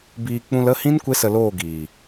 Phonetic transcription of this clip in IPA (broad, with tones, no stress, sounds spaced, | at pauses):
b iː˧ k͡p ũ˧ l ə˦˨ h ĩ˦ n kʷ e˦ s ə˧ l oː˦˨ ɡ iː˨